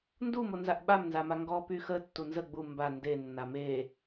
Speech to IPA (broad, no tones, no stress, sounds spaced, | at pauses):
n d u m o n z a ʔ ɓ a m n z a m a ŋ ɡ ɔ p y x ə tː u n z ə ɡ͡b u m b a n d e nː a m e